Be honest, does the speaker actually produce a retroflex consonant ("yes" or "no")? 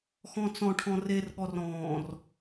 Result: yes